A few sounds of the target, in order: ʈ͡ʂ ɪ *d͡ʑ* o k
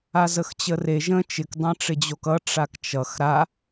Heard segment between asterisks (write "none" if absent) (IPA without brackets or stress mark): d͡ʑ